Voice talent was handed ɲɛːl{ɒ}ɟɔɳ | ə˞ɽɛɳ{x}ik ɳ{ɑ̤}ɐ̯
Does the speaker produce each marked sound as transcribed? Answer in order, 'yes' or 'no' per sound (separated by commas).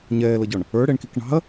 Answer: no, no, yes